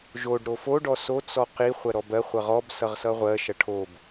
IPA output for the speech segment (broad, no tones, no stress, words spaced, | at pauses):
ʒoɖ ɾofo ɖɔso t͡sɔqi χʷɜɾɔbɜ χʷʌʁɔb sʌʁsʌʁʷɜ ʃʌʈʰob